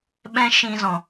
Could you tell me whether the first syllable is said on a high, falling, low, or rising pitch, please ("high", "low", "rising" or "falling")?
high